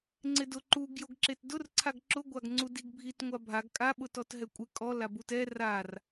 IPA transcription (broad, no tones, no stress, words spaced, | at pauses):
ŋ͡ǀɪdʊ ǃuɡ joɡǁetdʊr ǀʰaɡǁʊ ɡʷaɡŋ͡ǀudiɡbʱit ŋʷabʱaɡ kʼa ɓʊtɔtɦɛkʷʼɪ kʼɔ labutɛ rar